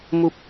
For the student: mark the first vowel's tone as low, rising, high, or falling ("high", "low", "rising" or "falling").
high